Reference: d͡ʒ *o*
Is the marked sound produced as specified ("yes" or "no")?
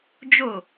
yes